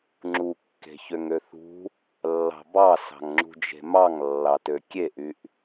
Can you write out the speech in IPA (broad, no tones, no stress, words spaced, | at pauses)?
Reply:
ŋ͡ǁukːe̤ çøŋøθṳ | lːɑ̤bɑ sɑ̤ŋŋ͡ǁṳd͡ʒe̤mɑŋ lːɑtøkʲeʔyʔ